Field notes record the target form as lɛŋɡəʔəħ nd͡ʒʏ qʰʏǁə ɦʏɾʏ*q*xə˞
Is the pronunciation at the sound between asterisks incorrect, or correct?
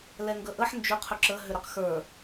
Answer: correct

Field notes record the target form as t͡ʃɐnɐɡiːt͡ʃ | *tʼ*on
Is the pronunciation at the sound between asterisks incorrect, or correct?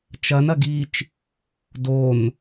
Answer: incorrect: d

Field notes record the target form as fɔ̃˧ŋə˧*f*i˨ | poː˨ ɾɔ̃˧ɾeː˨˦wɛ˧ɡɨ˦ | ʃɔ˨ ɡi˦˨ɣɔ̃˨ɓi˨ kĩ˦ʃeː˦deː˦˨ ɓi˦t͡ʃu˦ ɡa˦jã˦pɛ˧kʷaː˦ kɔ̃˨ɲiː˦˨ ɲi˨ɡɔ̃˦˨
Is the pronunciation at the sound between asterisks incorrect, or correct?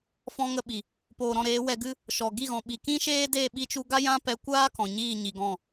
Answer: incorrect: ɓ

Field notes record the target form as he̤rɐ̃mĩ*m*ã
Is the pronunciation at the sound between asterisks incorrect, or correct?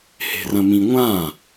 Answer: incorrect: ŋʷ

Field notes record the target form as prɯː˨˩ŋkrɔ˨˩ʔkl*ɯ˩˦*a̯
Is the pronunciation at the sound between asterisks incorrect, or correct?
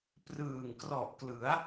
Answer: correct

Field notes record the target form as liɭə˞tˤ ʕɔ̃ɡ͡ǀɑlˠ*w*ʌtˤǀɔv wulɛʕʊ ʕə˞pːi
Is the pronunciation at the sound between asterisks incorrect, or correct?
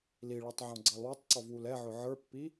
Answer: correct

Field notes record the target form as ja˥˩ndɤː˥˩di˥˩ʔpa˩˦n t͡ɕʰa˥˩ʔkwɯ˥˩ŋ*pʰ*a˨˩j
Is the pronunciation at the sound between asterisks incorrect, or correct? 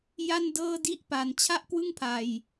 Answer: correct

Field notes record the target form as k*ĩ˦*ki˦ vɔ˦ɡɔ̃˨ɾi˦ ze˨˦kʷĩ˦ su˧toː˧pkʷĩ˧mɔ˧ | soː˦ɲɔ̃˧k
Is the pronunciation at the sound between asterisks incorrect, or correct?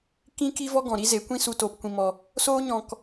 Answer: correct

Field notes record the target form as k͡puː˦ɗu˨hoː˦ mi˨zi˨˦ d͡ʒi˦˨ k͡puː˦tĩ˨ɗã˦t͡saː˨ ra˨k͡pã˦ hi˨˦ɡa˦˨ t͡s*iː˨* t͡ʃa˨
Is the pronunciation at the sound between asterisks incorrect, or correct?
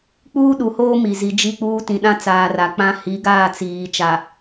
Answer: correct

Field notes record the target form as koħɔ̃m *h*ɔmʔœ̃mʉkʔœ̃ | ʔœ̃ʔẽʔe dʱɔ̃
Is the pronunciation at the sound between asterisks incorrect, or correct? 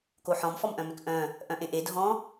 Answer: incorrect: f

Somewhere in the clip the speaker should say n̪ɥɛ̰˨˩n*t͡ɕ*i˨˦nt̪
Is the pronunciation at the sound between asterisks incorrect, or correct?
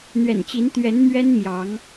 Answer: correct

